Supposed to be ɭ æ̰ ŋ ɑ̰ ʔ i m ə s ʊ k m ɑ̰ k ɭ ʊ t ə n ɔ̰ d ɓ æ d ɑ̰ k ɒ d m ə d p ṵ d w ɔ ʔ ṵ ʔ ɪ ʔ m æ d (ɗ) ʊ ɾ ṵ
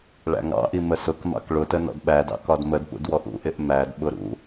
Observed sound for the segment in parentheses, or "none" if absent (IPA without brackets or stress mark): ɓ